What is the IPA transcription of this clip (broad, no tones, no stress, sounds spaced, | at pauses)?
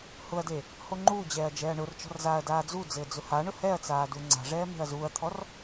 h ʊ ɐ̯ d e | h o ŋ͡ǃ uː d͡ʑ ɛː ɐ̯ d͡ʒ ɛː ɐ̯ ɳ ʊ r t͡ʃ ɔ̤ r z aː ɐ̯ d aː d͡z u d͡z ɘː d͡z ʊ h a ɳ ʊ h ɛ ɐ̯ t͡s aː d u ŋ͡ǀ a̤ ʐ ɛː m e̤ ɐ̯ z uː ɐ̯ t̪ʰ ɔ r